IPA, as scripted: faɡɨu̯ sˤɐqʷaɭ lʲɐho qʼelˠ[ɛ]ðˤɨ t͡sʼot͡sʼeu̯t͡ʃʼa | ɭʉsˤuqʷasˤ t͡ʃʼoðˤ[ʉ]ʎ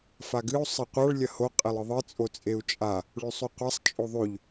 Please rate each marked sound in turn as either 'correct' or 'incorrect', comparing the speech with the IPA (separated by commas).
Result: incorrect, correct